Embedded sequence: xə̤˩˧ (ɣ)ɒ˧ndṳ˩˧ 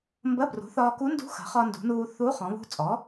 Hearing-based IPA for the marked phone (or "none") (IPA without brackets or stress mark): χ